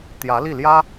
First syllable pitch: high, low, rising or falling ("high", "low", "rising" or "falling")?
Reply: rising